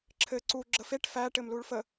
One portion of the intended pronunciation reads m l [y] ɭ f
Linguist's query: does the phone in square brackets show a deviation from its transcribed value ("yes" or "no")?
yes